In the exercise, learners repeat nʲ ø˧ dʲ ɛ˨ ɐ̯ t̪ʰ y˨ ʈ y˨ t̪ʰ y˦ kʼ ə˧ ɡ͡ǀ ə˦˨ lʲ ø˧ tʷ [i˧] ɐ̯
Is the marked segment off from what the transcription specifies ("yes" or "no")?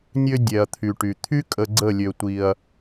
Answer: no